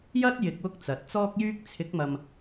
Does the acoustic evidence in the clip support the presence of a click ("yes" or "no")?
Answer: no